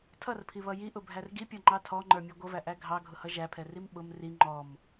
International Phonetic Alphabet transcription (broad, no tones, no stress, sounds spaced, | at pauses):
tʰ ʌ r pʰ i β ʌ j i ʔ ʊ bʱ æ r ɡ i pʲ ɔ ŋ͡ǃ ɑ tʰ ɔ ŋ͡ǃ ə˞ mʲ ɛ ɡʷ ʌ v æ ʔ æ ɡʱ ɑ ɡʱ ʊ h ʌ ʒ æ pʰ ɛ r i m ɓ ʊ m r i ŋ͡ǃ ɔ m